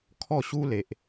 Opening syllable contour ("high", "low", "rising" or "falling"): falling